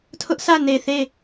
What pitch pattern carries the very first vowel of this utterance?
high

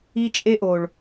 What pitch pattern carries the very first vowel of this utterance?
high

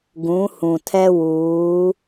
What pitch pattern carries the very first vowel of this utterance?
rising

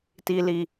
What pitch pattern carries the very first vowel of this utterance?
low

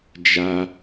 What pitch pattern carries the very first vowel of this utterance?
high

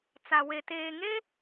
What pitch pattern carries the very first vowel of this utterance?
low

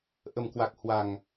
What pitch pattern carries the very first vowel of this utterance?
low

